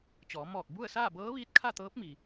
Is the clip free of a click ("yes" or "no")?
yes